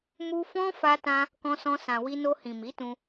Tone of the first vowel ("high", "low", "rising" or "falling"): high